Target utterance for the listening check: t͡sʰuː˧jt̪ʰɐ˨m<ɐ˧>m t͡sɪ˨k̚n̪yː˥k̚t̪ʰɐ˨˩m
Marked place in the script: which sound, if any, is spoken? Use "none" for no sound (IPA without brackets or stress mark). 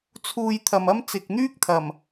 ɐ˥